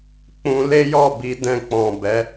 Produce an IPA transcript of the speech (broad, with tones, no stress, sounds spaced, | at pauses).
k͡p ũ˧ l e˦ j ɔ˦˨ b i˧ d ɛ̃˧ k͡p ɔ̃˨ b ɛ˨˦